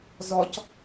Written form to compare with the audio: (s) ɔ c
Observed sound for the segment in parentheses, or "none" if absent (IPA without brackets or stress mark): z